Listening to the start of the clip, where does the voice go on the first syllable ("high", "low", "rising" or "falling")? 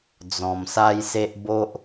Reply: low